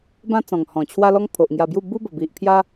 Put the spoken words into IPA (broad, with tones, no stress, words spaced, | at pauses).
bã˦t͡sɔ̃˨˩ŋhɔ̃˨˩ t͡ɕʰwa˦lɔ˦ŋ pʰo˨ʔŋja˧bju˥˧ bu˦bə˨˩bi˨ʔpʰja˦